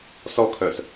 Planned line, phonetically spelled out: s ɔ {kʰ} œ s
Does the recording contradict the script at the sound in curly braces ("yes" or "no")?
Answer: no